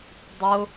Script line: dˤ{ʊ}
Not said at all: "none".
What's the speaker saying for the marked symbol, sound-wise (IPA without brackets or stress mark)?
ʊ